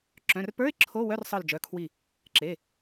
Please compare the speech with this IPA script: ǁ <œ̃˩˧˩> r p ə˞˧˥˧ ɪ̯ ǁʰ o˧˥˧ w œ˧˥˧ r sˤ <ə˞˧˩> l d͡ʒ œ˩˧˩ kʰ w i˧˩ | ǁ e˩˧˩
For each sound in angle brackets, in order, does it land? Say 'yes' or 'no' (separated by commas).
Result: yes, yes